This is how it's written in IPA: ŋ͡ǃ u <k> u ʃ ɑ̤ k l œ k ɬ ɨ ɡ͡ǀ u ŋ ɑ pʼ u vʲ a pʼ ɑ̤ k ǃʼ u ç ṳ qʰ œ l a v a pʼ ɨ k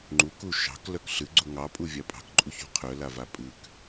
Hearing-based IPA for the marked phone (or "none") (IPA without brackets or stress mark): k